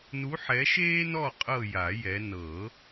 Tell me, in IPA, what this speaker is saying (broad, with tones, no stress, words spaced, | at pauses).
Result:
nu˨˦ħɛ˨˦ʃeː˦ nɔ˦˨ qʼɤ˦˨ja˨˩˦jɛ˨˦ nɤ˨˩˦